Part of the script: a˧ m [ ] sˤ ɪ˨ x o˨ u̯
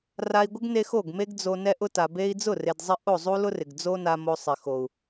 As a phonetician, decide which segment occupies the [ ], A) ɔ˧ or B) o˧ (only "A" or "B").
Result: B